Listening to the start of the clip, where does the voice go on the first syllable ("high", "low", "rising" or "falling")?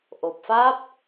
low